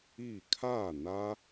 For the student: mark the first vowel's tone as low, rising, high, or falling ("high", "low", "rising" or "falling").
falling